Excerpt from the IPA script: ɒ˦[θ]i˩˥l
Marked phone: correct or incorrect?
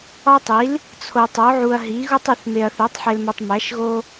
incorrect